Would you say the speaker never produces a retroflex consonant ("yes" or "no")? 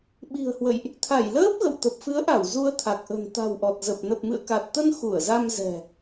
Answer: yes